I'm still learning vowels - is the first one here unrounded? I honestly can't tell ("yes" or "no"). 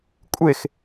yes